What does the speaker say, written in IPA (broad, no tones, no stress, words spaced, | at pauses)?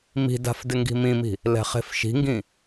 mi̤da̤f dɪŋɡi̤mĩmi̤ | lɛ̤χe̤fʃi̤ŋɡĩ